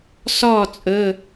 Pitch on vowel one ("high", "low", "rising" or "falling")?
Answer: falling